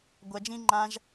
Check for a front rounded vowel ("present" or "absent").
absent